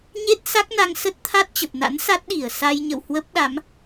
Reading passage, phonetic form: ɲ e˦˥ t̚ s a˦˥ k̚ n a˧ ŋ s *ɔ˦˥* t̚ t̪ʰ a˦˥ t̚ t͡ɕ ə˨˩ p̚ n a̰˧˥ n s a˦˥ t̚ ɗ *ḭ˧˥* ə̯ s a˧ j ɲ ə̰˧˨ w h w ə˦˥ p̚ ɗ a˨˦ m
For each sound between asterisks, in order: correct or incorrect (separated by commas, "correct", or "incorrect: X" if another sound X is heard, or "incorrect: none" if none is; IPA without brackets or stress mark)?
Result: incorrect: ə˦˥, incorrect: i˧˩